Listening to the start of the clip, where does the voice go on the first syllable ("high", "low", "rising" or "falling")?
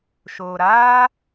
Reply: low